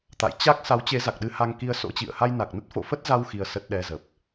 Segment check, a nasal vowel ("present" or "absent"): absent